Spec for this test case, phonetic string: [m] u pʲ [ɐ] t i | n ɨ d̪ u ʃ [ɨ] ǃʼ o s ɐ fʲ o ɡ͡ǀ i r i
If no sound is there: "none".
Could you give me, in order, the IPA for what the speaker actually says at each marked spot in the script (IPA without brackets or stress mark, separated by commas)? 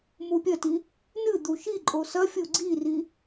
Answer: m, ɐ, i